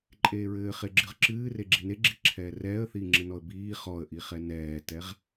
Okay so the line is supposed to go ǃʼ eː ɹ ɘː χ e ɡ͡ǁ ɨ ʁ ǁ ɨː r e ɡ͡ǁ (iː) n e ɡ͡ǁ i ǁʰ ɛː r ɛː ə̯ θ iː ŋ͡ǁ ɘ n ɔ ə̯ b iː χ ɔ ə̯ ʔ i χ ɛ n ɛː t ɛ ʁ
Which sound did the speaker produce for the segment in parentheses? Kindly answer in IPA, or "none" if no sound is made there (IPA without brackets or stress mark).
i